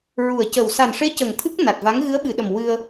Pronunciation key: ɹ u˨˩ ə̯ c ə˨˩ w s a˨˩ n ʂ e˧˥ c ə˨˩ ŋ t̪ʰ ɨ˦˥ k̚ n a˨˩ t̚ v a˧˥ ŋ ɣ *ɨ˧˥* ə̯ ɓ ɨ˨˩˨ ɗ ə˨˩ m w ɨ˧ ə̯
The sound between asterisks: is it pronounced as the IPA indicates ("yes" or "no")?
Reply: yes